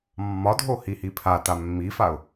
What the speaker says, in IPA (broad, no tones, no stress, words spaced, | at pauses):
mːɒdʱo hihipʰata mːifaʊ̯